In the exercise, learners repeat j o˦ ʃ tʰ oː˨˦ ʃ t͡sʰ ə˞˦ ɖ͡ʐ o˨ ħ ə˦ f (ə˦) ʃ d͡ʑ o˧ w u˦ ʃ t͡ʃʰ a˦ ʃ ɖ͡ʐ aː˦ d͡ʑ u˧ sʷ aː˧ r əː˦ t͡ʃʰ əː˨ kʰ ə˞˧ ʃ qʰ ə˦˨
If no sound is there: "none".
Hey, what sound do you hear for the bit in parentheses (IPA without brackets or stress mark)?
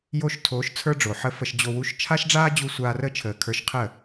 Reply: ə˧